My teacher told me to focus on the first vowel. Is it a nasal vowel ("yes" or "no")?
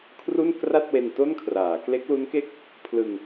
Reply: no